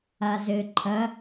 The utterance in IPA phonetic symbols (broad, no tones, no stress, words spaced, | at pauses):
azɘ ǃʰɐ